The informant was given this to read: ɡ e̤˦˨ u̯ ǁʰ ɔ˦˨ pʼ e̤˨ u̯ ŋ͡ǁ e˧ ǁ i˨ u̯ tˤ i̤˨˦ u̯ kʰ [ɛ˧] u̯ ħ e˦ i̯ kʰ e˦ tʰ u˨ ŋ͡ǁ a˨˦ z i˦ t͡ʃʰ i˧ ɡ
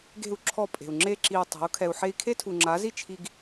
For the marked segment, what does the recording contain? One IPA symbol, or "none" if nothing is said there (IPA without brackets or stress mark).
ɛ˧